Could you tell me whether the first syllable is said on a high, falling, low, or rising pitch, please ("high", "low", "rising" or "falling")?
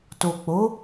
low